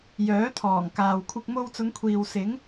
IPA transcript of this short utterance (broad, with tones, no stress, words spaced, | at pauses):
jœː˨˥t̪ʰɔː˨˩ŋkaː˨wkʷʰɪ˧k̚ mo˧wt͡sʊ˨˧ŋkʷʰiː˨w sɪ˨˥ŋ